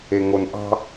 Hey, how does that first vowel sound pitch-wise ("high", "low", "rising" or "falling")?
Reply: low